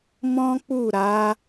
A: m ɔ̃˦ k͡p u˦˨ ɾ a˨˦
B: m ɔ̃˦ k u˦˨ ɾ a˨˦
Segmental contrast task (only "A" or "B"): A